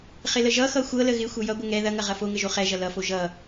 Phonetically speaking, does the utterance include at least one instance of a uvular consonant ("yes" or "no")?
yes